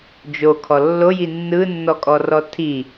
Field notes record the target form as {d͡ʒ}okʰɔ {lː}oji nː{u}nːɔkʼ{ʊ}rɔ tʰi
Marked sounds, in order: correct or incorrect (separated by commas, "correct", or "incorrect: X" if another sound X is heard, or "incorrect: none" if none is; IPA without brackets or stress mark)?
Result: correct, correct, incorrect: ɯ, incorrect: ɔ